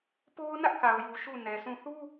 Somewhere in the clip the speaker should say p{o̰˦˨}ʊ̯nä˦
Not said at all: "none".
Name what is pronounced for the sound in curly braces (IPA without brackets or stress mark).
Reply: o˦